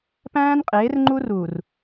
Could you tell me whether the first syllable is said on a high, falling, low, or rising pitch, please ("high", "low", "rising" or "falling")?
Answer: high